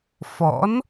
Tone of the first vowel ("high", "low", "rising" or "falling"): rising